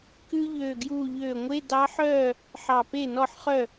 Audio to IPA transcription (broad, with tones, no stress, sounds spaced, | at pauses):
k ʉ˥ ʎ øː˧˩ ɡ j uː˧˩ ʎ øː˧˩ ŋʷ e˧˥˧ d ɑ˧˥ ħ œː˥˩ | ħ ɑ˧˩ p e˥˩ n ɔ˥˩ ħ χ œ˥˩